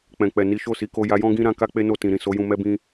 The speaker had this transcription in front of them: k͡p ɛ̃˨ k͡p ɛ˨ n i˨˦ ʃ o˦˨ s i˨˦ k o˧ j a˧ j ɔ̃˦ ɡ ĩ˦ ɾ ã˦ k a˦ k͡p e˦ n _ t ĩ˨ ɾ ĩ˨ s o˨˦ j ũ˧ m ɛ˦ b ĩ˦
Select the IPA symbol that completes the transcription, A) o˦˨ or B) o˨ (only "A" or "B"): A